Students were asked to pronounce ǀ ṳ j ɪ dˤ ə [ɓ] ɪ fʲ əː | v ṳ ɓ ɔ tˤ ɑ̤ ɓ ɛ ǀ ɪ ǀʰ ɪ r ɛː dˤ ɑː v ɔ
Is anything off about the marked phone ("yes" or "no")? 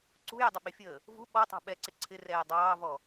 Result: no